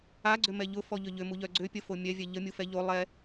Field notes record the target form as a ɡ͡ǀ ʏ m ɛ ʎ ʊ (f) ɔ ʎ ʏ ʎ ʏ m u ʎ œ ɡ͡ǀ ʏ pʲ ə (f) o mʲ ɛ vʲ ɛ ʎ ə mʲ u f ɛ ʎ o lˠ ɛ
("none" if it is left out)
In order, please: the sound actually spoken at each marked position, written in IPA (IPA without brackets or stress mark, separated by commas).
f, f